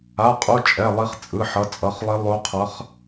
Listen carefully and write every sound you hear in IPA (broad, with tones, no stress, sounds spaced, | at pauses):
a˩˧˩ qʼ u˩˧˩ t͡ʃʼ ɛ˩˧˩ lˠ i˨˦ χ t͡sʼ ɯ˩˧˩ ħ ʌ˩˧˩ t͡sʼ ʌ˩˧˩ χ lˠ i˨˦ lˠ o˨˦ qʰ ʌ˨˦ χ